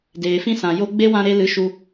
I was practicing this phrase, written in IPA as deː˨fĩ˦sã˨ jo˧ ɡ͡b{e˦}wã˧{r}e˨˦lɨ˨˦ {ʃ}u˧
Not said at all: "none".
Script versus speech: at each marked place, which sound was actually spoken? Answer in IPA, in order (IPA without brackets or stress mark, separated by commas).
e˦, ɾ, ʃ